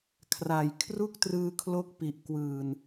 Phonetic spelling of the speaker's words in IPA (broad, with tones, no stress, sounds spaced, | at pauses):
kʰ r a˨˩ j kʰ r u˥˩ k̚ t r ɯː˧ kʰ l o˦˥ k̚ p i˨˩ ʔ k w ɯː˨˩ n